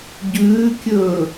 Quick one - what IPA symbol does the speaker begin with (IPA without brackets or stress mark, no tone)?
ɟ